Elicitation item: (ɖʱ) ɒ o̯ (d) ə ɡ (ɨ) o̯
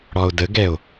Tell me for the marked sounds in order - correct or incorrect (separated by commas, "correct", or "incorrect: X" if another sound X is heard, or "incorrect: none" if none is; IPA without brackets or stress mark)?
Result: incorrect: ɽ, correct, incorrect: ɛ